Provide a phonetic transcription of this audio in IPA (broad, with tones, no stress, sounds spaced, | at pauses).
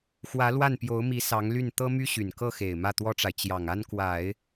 x w ä˧˥ l w a˥˩ n p j o˧˥ ʊ̯ m i˧˥ s ɑ˧˥ ŋ l y˥˩ n t̪ ɤ˥ m y˥ ɕ y˨˩ n k ɤ˥˩ x e˨˩ ɪ̯ m ä˥˩ t̪ w ɔ˥ ʈ͡ʂ a˨ ɪ̯ t͡ɕ j ɑ˨˩ ŋ a˥ n k w a˨˩˦ ɪ̯